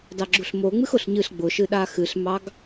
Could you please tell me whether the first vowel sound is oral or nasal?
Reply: oral